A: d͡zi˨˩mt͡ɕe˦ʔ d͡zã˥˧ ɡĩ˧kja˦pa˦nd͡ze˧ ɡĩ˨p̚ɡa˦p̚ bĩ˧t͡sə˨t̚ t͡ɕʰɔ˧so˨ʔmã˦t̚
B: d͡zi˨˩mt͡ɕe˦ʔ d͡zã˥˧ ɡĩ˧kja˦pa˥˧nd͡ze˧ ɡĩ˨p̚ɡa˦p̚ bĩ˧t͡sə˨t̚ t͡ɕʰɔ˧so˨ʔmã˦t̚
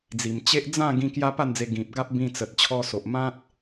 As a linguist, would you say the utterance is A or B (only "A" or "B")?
B